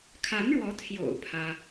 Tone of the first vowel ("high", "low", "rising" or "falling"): rising